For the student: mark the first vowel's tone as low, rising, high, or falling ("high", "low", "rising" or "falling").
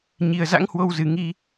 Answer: low